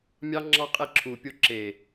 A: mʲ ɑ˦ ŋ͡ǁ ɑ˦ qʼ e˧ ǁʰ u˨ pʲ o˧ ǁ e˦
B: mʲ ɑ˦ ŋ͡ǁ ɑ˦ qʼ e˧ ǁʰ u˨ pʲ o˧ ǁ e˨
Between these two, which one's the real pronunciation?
B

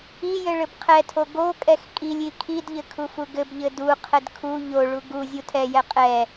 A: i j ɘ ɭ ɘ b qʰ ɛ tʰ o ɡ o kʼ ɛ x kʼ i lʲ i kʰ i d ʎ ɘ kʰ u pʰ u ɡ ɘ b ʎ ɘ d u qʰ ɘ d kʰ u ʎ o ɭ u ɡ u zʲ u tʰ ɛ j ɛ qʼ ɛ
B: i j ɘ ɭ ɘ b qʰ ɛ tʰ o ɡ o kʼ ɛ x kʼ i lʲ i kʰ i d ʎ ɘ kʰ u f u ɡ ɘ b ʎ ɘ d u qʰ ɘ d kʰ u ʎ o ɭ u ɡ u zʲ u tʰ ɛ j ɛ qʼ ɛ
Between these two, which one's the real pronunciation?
B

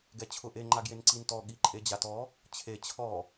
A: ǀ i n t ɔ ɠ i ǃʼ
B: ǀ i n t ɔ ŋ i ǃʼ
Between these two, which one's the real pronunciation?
A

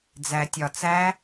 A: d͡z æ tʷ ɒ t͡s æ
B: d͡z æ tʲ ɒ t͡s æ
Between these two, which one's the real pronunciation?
B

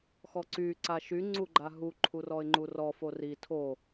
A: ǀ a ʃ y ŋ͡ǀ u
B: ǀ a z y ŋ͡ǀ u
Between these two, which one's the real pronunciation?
A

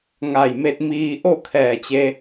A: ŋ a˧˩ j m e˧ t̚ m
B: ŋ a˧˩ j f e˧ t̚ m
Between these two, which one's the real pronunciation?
A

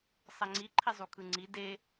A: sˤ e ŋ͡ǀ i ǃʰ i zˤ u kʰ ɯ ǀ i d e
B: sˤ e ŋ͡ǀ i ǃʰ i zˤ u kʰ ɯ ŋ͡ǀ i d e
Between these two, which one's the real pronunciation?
B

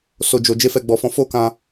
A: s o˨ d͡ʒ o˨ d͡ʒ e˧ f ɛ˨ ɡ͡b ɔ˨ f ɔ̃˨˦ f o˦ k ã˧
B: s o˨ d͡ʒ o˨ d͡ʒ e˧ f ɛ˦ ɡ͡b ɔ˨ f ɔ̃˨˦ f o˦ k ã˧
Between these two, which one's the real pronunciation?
A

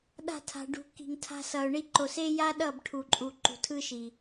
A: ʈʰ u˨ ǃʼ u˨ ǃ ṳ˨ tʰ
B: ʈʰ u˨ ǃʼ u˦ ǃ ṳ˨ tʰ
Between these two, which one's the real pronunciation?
A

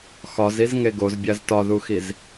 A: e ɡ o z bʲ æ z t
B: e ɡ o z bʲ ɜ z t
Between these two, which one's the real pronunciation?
A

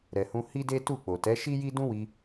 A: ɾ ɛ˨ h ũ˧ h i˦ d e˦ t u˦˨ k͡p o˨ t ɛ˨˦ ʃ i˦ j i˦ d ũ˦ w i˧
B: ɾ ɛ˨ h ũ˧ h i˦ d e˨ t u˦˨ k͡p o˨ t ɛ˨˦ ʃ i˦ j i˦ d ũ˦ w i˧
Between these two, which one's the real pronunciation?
A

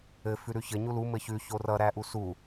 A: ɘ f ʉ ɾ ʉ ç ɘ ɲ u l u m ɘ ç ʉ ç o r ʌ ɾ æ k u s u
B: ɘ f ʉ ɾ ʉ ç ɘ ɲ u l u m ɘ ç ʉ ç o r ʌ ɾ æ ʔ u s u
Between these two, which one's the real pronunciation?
B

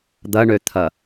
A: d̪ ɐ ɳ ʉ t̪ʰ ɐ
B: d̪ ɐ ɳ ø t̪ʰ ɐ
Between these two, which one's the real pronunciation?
B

